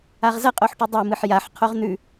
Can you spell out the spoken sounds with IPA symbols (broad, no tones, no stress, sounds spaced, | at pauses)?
a ʁ z ɐ qʼ o ħ ʈ u dˤ o m ɨ ħ j a ħ qʰ o ʁ n̪ ʉ